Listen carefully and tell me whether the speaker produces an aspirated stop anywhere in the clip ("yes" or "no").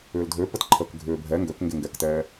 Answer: yes